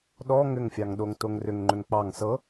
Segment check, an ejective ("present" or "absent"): absent